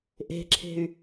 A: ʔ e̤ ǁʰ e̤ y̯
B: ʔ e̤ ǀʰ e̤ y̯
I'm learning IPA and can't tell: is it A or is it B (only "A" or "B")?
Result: A